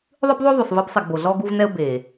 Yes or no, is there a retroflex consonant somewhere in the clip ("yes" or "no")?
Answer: no